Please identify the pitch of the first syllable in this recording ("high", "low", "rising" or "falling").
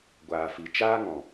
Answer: low